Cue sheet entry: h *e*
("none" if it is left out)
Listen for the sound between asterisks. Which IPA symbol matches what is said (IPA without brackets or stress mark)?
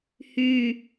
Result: y